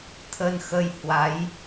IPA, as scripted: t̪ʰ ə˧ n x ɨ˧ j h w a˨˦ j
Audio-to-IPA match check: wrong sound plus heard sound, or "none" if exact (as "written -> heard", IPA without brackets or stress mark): ɨ˧ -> ə˧